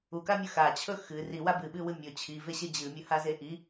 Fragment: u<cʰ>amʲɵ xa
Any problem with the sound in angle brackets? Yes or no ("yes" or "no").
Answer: yes